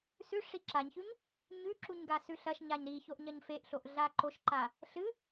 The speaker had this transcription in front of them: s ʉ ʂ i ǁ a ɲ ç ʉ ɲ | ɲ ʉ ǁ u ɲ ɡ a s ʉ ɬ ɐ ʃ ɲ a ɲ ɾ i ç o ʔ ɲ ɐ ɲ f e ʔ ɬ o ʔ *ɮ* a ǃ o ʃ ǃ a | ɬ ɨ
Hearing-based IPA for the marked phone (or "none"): ɮ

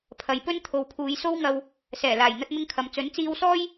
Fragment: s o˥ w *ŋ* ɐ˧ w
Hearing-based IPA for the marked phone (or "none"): ŋ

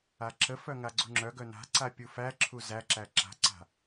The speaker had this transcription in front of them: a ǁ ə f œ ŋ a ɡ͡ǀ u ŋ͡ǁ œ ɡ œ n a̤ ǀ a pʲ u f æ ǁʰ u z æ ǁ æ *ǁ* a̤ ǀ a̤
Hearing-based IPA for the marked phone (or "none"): ǁ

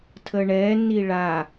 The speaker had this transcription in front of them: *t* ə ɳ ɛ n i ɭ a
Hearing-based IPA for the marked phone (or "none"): tʰ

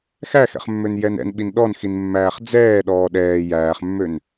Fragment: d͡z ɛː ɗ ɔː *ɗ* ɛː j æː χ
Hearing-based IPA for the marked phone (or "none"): ɗ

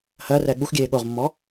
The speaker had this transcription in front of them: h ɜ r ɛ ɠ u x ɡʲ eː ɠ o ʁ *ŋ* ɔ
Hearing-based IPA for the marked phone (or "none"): mː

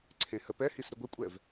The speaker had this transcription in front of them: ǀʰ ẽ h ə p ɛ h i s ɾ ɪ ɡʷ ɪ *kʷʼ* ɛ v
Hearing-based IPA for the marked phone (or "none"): kʷʼ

